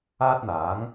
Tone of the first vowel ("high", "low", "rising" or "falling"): high